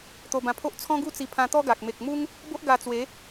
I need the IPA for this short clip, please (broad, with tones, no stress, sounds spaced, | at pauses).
t̪ o˧ b ã˧ pʰ o˦ ʔ t͡sʰ ɔ̃˦ ɡ u˥˧ t͡s i˧ pʰ ã˧ t̪ ɔ˦ ɡ a˨ k̚ m e˨ k̚ m u˦ ŋ | b o˦ ʔ ɡ a˧ t͡s w e˨˦